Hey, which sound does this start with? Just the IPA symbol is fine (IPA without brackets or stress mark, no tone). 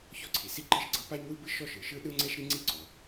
ç